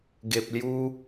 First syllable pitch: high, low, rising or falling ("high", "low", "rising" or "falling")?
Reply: low